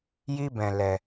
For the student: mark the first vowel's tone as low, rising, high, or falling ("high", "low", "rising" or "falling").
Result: high